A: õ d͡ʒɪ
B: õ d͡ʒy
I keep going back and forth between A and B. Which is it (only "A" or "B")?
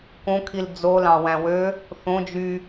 B